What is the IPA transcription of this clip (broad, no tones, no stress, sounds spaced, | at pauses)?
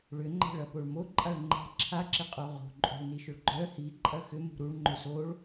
ɭ ʏ ŋ͡ǃ ɛ̤ ɭ ɐ p o ɭ m o ǃʼ a ɭ ŋ͡ǃ ɛ̤ ǁʰ a ǁ ɪ qʼ o ʁ o̤ ǃʼ o̤ ɭ n i ʃ ʊ ɭ ɡ͡ǃ œ h i ǃʼ ɐ x ʏ m ṳ ɾ u ɭ ŋ͡ǃ ʏ s o ɭ